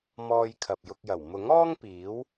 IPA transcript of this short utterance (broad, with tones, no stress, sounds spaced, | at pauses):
m ɔː˧ j kʰ ɐ˨ p̚ j ʊ˧ k̚ j ɐ˨˩ w m ʊ˨˥ ŋ ɔː˥ ŋ p iː˨˥ w